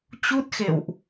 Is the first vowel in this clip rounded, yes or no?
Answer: yes